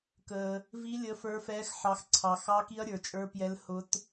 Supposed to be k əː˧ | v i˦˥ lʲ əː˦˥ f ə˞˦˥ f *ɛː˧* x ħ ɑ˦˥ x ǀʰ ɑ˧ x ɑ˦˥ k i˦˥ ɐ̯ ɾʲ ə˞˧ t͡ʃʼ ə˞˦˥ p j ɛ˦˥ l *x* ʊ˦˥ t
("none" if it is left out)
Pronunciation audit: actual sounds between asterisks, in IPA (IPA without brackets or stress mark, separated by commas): ɛː˦˥, h